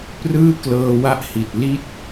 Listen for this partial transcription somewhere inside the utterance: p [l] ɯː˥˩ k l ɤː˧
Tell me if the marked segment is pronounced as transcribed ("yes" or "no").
no